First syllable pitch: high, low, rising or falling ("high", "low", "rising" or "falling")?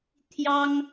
high